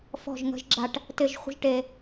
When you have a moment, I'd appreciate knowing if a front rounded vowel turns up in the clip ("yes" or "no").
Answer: no